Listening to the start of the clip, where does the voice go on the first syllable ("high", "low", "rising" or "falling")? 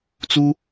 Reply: high